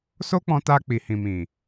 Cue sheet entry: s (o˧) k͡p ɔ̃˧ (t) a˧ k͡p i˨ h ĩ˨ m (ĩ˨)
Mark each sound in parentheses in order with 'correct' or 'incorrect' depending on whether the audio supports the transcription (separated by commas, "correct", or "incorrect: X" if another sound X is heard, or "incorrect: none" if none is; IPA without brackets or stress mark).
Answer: incorrect: o˦, correct, correct